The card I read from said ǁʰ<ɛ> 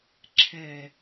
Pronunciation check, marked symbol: correct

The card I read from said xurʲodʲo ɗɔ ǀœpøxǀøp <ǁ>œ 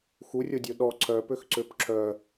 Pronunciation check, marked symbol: correct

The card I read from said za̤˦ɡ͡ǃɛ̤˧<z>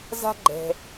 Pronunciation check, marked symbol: incorrect: none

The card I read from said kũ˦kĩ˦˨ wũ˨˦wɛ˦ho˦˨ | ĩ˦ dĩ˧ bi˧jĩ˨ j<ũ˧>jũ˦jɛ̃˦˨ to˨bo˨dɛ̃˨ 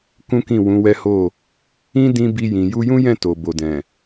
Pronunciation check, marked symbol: incorrect: u˧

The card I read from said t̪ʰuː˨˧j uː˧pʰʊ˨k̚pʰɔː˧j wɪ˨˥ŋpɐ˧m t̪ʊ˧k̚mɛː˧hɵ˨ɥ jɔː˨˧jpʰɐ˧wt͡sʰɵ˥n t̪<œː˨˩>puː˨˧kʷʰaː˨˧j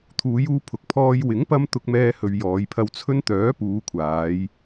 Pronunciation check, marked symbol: incorrect: œː˨˥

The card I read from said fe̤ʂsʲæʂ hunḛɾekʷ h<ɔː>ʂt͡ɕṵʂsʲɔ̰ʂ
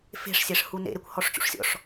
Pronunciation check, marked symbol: incorrect: ɔ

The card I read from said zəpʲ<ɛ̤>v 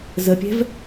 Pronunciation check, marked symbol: correct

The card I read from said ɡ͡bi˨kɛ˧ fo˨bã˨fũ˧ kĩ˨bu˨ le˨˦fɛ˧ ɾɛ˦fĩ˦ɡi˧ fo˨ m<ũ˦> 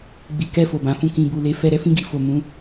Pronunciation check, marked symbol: incorrect: ũ˨˦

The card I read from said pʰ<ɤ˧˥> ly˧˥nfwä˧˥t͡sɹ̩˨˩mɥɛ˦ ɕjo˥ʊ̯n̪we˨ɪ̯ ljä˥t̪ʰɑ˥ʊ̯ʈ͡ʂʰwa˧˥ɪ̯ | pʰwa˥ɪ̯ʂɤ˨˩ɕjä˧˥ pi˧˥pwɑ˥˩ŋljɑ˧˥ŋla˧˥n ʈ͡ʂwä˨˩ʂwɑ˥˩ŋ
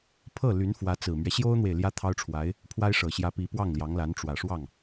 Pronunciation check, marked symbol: incorrect: ɤ˥˩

